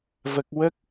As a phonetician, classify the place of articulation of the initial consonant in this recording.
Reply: labial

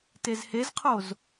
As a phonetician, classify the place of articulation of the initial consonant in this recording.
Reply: alveolar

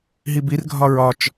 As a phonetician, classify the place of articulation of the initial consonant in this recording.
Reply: glottal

